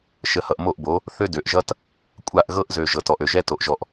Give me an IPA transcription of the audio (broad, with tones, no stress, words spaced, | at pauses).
ʃə˨˦hʌ˨ʔmo˦˨ʔbo˨˦ | θø˦dø˨ʔʒʌ˦t | kʷʼa˦˨ʔɣɤ˦ʔzø˨ ʒɤ˨tɔ˨ʔø˨ʒɛ˦ to˨ʔʒɔ˧ʔ